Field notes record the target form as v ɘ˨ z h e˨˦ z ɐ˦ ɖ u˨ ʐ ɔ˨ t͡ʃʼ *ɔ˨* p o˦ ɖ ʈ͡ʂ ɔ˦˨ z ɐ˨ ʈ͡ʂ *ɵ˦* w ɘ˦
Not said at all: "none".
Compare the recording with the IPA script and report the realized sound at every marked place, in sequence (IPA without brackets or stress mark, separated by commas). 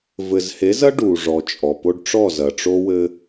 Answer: ɔ˨, o˦